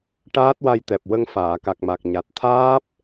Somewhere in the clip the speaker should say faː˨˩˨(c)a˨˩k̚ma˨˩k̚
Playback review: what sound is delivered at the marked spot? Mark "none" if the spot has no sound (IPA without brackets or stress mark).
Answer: k